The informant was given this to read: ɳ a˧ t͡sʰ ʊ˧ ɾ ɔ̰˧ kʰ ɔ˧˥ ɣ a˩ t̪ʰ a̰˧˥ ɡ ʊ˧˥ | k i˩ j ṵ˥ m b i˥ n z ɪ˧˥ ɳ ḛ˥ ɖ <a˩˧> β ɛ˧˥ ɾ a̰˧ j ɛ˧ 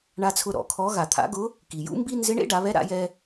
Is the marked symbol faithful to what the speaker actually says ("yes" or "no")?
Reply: yes